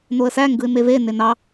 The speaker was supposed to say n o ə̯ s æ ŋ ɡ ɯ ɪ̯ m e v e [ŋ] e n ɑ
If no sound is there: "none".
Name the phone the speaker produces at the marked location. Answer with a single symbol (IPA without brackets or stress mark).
n